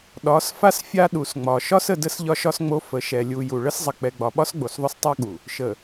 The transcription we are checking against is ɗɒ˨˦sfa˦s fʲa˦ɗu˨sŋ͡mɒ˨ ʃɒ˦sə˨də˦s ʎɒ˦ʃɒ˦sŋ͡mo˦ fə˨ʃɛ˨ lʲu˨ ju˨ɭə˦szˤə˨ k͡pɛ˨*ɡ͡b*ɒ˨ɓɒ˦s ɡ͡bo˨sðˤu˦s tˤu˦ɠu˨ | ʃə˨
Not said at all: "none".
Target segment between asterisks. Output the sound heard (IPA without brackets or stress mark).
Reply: ɡ͡b